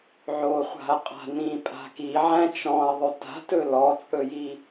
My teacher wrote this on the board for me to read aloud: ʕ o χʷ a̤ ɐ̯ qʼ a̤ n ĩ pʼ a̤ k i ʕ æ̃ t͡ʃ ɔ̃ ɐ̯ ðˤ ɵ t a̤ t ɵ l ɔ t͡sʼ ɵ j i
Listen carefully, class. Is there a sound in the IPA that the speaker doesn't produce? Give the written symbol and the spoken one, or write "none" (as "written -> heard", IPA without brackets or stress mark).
none